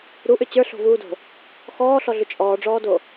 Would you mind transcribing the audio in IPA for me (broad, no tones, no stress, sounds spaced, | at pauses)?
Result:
ɾ u ʔ ʏ t͡ɕ ə˞ ɬ o̤ v uː d o̤ | x ɔː ɬ ɔ ɮ ʏ t͡ʃʼ ɔː ɖ͡ʐ ɔː d o